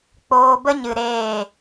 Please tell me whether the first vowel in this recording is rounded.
yes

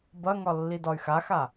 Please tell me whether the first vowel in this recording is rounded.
no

